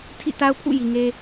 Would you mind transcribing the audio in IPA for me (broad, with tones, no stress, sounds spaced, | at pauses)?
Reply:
tʰ ḭ˦˨ t a˦ ʊ̯ pʰ ṵ˦˨ j i˨ ŋ e˦